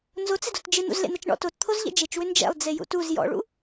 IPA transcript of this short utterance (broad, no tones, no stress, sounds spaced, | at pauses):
n z o t͡s ɪ d o t d͡ʒ ɪ n̪ ṵ z l ḛ n̪ ɐ t͡ʃ ɳ ɔ̰ t o t t̪ʰ o z ʎ ɛ̰ d͡ʒ e t͡ʃ w ʏ n d͡ʒ ɛ̰ lˠ d͡z e j ṵ t u z j ɔ̰ ɭ ṵ